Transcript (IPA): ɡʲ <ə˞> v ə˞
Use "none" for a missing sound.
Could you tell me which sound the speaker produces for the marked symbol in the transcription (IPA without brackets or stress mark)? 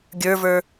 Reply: ə˞